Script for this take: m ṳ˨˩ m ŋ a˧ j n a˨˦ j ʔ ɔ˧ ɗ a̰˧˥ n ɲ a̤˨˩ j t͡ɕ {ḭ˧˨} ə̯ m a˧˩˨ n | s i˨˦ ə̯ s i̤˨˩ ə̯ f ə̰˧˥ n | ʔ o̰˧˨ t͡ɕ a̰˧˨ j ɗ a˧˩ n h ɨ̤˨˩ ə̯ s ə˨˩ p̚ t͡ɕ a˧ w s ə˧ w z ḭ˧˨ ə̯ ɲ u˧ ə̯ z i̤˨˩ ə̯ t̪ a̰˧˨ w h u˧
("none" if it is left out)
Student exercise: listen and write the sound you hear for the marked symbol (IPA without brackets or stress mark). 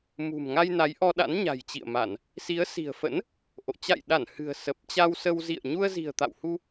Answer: ḭ˧˨